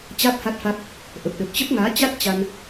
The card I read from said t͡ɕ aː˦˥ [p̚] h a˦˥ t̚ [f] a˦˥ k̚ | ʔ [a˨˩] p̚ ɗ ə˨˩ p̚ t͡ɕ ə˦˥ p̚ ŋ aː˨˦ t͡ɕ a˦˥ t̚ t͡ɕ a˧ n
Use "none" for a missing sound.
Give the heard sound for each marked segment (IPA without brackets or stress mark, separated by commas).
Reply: p̚, f, ə˨˩